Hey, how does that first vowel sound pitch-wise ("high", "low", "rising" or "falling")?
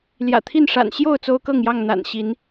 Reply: low